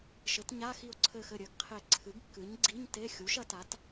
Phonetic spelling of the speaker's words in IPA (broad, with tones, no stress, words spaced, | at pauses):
ʃɘ˩˥tɲa˧˥˧ xi˧˩o̯ǀʰɘ˧˩xɘ˧˩ ɾʲɘ˩˥ɡqʰe˧˩ ǀʰɨ˩˥ɡkːɨ˩˥ɲ ɡ͡ǀi˧˥˧ɲte˧˥˧ xʲu˩˥ʃ ɐ˩˥ta˩˥t